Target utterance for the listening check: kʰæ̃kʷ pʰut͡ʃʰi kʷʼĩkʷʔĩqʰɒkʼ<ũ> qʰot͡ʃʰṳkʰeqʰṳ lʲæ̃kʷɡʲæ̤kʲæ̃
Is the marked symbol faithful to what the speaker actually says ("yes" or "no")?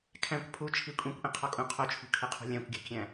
yes